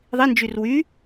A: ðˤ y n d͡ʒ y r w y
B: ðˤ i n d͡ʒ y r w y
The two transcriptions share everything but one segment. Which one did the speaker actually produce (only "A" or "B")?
B